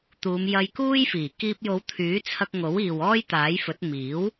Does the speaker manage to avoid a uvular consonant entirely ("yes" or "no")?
yes